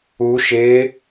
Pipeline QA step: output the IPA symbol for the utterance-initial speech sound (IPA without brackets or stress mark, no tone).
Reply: u